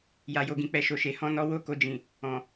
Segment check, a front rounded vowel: absent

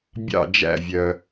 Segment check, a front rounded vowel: present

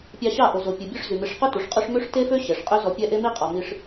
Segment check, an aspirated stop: absent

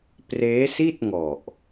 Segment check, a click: absent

